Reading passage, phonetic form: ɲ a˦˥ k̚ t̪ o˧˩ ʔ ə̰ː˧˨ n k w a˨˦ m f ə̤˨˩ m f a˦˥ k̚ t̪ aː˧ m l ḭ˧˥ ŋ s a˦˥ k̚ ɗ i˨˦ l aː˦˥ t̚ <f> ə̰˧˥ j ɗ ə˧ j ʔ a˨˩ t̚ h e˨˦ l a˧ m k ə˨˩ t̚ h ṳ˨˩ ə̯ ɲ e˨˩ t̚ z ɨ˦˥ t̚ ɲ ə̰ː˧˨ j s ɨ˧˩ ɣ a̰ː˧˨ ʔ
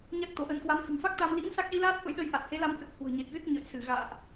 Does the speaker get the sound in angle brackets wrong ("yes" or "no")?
no